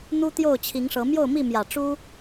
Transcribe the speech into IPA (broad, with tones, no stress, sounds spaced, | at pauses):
n̪ u˦ t̪ j o˥˨ ʊ̯ t͡ɕʰ i˨˦ ŋ ʂ ɤ˨˦ m j o˥˨ ʊ̯ m i˥˨ m j ä˨˩ ʈ͡ʂ u˦